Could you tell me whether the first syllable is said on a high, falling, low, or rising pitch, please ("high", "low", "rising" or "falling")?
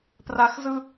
low